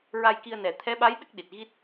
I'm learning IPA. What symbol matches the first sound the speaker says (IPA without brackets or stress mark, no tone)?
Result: ɹ